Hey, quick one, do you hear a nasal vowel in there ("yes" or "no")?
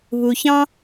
yes